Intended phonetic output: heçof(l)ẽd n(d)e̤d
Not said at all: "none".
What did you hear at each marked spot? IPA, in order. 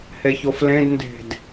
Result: l, d

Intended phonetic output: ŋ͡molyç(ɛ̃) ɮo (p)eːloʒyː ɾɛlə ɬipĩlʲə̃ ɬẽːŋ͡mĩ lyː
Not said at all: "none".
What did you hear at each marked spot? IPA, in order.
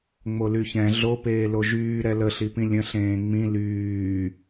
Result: ɛ̃, p

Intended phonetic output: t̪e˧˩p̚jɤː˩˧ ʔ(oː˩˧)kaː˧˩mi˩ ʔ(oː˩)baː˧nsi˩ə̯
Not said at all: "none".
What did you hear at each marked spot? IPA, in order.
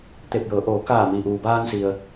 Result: oː˩˧, uː˩

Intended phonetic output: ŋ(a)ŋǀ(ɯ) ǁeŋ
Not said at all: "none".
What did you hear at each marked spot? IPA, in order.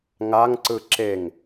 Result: a, ɯ

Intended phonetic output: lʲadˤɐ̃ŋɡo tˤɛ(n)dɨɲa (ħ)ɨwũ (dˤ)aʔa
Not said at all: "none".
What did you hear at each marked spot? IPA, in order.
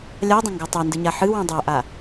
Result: n, ħ, dˤ

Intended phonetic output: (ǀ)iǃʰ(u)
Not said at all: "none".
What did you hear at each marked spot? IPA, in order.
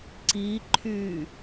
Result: ǀ, y

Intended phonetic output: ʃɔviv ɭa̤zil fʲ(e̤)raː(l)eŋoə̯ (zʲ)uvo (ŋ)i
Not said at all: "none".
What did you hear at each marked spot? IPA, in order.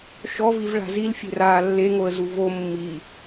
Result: e̤, lː, z, mː

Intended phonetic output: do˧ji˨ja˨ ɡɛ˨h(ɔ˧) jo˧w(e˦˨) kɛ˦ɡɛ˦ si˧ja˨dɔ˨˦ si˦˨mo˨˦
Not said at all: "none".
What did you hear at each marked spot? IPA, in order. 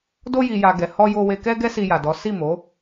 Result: ɔ˧, e˧

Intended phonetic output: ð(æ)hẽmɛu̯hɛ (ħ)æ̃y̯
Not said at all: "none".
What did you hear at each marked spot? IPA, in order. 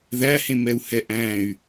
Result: æ, ʔ

